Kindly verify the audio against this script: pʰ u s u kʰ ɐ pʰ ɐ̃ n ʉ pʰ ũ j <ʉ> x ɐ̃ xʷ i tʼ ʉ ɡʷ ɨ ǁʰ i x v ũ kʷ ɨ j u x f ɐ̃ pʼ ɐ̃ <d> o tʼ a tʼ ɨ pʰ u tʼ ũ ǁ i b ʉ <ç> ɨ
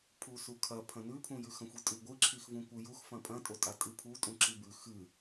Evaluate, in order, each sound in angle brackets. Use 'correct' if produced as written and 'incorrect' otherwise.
correct, incorrect, incorrect

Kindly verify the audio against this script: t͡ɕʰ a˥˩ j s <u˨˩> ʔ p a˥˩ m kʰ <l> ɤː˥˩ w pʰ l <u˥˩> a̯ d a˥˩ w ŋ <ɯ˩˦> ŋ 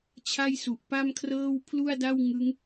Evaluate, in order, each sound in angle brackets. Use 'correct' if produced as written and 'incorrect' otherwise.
correct, incorrect, correct, incorrect

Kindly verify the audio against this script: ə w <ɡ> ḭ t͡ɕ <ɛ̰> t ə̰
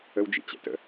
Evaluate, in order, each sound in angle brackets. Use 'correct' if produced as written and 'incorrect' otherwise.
incorrect, correct

